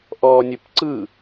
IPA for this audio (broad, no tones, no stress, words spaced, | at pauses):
ʔɔːnʲɘpǀɯ